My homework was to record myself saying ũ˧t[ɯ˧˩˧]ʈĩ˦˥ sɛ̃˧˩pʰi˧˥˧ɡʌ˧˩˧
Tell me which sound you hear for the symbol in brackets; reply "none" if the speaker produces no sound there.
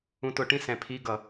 ʊ˧˩˧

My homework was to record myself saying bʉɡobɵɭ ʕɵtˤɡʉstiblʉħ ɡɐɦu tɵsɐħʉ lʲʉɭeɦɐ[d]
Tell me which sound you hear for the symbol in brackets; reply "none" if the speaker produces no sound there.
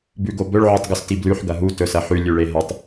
tˤ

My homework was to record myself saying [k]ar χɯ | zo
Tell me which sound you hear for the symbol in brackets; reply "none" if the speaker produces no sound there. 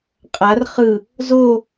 qʼ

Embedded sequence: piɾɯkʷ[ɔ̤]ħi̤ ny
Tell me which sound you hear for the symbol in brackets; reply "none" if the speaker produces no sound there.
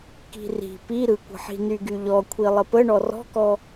ə̤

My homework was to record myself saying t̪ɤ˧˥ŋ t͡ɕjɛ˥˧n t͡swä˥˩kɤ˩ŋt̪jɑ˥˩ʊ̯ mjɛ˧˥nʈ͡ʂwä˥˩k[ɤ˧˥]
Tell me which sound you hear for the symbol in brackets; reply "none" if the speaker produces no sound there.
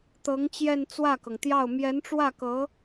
ɤ˧˥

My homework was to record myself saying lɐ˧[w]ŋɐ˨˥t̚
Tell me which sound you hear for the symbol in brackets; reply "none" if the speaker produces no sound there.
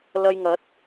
j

